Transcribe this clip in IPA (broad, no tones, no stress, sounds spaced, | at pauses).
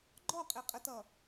ɡ͡ǃ ɔ qʼ e qʼ ə t ʌ